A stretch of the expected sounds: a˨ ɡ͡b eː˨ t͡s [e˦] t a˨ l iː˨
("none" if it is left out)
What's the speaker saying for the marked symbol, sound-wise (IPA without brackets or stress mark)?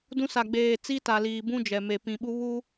i˦